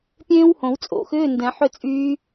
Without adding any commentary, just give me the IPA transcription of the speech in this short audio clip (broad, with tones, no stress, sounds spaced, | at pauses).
pʲ ẽː˦˥ w h õ˨˩˦ w t͡sʼ o̰˨˩˦ x ʏː˧˥˧ n d ɛ̃˨˩˦ ħ ʏ˥˧ t͡sʼ yː˦˥